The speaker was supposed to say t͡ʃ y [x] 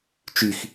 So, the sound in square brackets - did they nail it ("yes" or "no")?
yes